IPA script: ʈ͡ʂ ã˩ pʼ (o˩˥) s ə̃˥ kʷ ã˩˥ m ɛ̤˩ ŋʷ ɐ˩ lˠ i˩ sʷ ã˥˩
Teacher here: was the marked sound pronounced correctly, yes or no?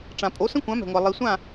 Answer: yes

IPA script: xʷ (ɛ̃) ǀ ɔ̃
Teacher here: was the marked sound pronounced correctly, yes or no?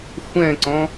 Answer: yes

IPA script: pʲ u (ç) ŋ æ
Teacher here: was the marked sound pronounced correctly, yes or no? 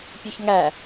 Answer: yes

